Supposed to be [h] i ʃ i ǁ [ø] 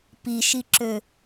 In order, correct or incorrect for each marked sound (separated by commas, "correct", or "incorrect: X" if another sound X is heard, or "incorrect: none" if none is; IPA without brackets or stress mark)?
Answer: incorrect: p, correct